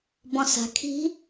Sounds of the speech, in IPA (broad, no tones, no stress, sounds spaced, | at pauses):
b ɔ̃ s a̤ kʰ i̤